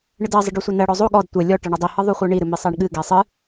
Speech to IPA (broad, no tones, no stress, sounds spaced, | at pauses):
ɳ ɨ d ɜ zˤ ɨ ɖ ɔ sʷ i n ɜ ɽ ɔ zˤ o ɠ ɔ d tʷ ɛ lʲ ɔ ʈ ɜ ɳ o dˤ i h ɯ ðˤ u χʷ ɜ ɳ i ɾ ɨ m i sˤ ɛ ɳ ɠ ɨ ɡ ɛ sˤ ɨ